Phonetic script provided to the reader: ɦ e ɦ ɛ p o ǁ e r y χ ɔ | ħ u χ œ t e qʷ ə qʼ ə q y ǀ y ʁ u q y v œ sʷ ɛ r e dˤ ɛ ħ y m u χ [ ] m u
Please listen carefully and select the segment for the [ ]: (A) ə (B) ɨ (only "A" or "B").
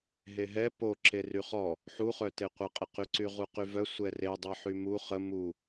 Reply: A